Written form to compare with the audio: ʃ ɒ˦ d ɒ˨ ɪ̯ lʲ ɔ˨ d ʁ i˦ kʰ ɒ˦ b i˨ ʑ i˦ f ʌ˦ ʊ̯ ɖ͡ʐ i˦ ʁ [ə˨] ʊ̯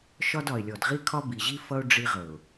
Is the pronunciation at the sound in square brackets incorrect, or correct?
correct